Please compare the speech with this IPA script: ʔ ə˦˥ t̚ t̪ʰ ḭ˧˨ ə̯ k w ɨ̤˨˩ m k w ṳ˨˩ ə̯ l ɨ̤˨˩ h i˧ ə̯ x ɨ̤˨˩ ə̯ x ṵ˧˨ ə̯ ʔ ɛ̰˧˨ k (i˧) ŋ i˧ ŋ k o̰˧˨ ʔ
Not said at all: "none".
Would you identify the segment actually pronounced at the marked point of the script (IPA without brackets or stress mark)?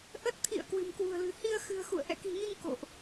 i̤˨˩